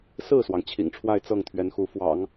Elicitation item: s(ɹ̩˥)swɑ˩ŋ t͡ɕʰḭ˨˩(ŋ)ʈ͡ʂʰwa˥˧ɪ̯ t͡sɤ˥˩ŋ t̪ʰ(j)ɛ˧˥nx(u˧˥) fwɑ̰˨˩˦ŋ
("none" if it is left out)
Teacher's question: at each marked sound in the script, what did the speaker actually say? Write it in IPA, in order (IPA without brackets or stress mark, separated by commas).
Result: ɹ̩˥˩, ŋ, ɥ, u˧˥